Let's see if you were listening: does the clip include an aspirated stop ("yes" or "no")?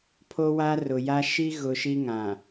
yes